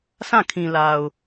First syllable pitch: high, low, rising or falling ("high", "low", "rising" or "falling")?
falling